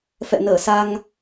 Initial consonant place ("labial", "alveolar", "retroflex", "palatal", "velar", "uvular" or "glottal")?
labial